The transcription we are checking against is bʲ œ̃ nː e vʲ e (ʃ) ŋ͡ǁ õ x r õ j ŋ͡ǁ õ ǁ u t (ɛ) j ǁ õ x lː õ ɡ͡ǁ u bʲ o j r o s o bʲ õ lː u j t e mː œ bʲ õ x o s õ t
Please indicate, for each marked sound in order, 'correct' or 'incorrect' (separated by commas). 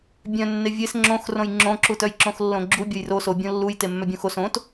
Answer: incorrect, incorrect